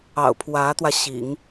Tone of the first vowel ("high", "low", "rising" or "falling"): low